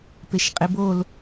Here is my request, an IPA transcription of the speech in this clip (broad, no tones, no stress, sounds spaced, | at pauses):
p e ʃ qʼ i b o l